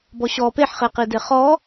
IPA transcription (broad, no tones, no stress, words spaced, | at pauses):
bɔɕɔ peħχeqide χɔ